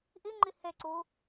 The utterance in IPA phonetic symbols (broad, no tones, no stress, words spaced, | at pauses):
ʔiŋ͡ǃi heǀu